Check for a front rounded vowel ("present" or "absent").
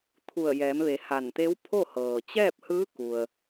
absent